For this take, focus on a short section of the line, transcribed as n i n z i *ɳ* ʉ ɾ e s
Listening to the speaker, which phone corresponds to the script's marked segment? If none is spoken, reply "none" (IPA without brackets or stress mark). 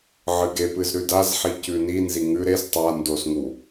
ŋ